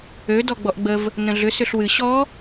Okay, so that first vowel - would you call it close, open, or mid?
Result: mid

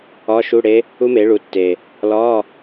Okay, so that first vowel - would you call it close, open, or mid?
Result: open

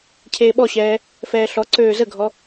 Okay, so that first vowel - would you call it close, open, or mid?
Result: mid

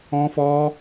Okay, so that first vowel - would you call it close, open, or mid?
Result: mid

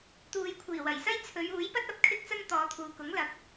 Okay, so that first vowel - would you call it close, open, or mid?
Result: close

